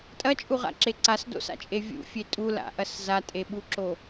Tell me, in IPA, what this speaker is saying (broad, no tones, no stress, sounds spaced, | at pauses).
tʼ ɐ t͡ʃʼ u ʁ a̰ ǁ e ǀ a s d o̰ s a̰ t͡ʃʼ e vʲ ṵ fʲ e tʼ u l a̰ ʔ ɐ s z a tʼ e ɓ u ǁ o